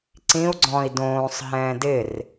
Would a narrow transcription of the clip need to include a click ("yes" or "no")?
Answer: yes